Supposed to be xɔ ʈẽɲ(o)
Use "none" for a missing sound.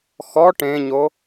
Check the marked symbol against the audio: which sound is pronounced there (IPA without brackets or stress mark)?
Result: o